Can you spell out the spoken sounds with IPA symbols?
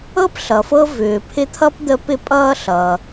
ɤ˥ p ɬ ʌ˨ f ɤ˦ v ʏː˨ pʰ ɪ˦ t̪ʰ ʌ˥ p d̪ ə˦ p ɪ˥ pʼ ʌː˥ ɬ ʌː˨

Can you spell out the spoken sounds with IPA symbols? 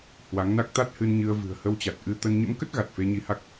h w a˨˦ ŋ n a˦˥ k̚ t̪ a˦˥ t̚ h ɨ˧ n ɲ ɨ˧ ə̯ v ɨ̤˨˩ ə̯ h ə˧ w t͡ɕ a˨˩ t̚ ʔ ɨ˧ t̪ ə˧ n ɲ ə̰˧˥ m k ə˦˥ t̚ ɣ a˨˩ t̚ f e˧ ɲ i˧ h a˦˥ k̚

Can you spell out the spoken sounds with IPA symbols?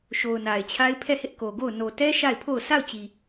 ʃ o˨ ʊ̯ n a˨ ɪ̯ t͡ɕʰ a˦ ɪ̯ pʰ ɛ˦˨ h ɪ˦ ʔ k o˨ ɡ o˦˨ ʊ̯ n o˨ t ɛ˦ ʃ a˦˨ ɪ̯ pʰ o˦˨ ʊ̯ sʰ a˦˨ ʊ̯ t͡ɕ i˨

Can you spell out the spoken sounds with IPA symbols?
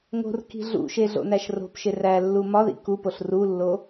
ŋ o̤ r k i̤ ɮ ṵ ʃ e ɮ o̰ n æ ʃ r o̤ p ʃ e r æ lː u m ɒ ð ḭ k u p o ɬ r u lː o

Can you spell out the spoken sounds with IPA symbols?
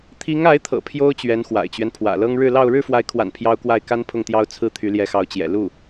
t̪ʰ i˧˥ ŋ a˧˥ ɪ̯ t̪ʰ ɤ̰˨˩ pʰ j o˥ ʊ̯ t͡ɕ ɥ ɛ˧˥ n x w a̰˨˩ ɪ̯ t͡ɕ ɥ ɛ˦ n pʰ w ä̰˨˩ l ɤ˥ ŋ ɻ ɻ̩˥˧ l ɑ˥˧ ʊ̯ ɻ ɻ̩˥˩ f w a˧˥ ɪ̯ kʰ w a̰˨˩ n pʰ j ɑ˥ ʊ̯ k w a˥˩ ɪ̯ k a˥ n pʰ ʊ˥˩ ŋ t̪ j ɑ˥ ʊ̯ t͡sʰ ɹ̩˥˩ t̪ʰ y˧˥ l j ɛ˧˥ x ɑ˧˥ ʊ̯ t͡ɕ j ɛ̰˨˩ l u˥˩

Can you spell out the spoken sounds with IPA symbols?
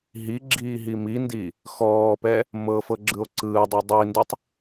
ɦ i ɡ͡ǁ iː ɦ i m i n d i | x ɔː p ɛ | m ɤ f ɤ ɡ͡ǁ ɯ o̯ ǀ ɯː dˤ ɤ dˤ i n d ɯ tˤ

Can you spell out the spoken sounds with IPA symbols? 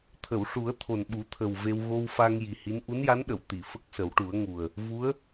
t̪ʰ ə˨˩˨ w ʂ u˨˩˦ ə̯ t̪ʰ o˨˩ n ɓ u˨˩˦ t̪ʰ ə˨˩ w v e˧ w ɣ o˧ w f a˧ ŋ j i˨˩ h i˧˥ n ʔ u˧˥ n j a˧˥ n ɗ ə˨˩˨ w t̪ i˨˩˨ f ə˦˥ k̚ s ə˨˩˦ w ʈ u˨˩˦ ə̯ ŋ u˨˩ ə̯ | v u˧˥ ə̯

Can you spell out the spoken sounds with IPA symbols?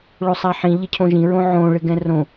ɭ o sˤ a ħ ĩ ʎ ɪ cʰ õ ʒ ĩ ɹ õ ʕ õ ɭ ɪ ɡ ɛ̃ r õ

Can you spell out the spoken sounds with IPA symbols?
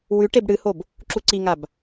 w ʉ ʈ e b ɽ ɨ h o b | ǁ u ǀ i ŋ a b

